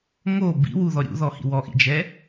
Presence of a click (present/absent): absent